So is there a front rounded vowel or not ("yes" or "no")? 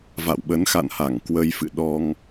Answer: no